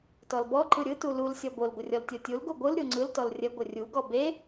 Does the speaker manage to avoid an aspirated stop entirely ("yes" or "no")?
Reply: yes